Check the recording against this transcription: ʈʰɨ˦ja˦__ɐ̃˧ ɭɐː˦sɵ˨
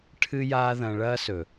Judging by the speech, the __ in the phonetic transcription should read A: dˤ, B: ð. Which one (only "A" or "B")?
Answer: B